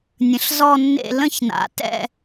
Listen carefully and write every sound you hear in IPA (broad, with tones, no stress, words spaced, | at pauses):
nʲə̃˨˥ɬ zɔ˥˧nːḛ˥˧ lə̃˥˩çna̰˨˥tɛ̰˥˧